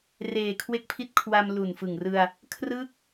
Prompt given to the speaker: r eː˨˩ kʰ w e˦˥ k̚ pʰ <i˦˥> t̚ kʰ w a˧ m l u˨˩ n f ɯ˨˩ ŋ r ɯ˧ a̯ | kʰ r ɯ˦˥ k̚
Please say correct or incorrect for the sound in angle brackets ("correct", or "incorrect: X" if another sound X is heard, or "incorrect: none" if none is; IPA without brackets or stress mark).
correct